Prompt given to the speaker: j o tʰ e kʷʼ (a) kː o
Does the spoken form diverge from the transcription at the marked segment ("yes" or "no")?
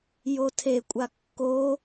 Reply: no